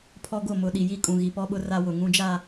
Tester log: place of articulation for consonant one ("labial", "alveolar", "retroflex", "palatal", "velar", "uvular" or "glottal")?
labial